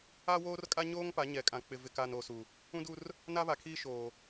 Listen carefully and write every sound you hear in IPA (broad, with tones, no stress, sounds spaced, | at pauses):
a˦ w oː˦ r kʼ a˦ ɲ oː˦ ŋ p a˨˦ ɲ ɛ˨ kʼ ã˨ k͡p ɪ˨ v ɪ˨ k a˨ n o˨ s u˨ | ũ˦ d u˦ r | n a˦ β a˨ kʰ iː˦ ʃ oː˨